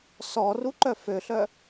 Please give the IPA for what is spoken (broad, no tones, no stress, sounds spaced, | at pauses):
s ɔ r u ǃ œ f ø ɬ œ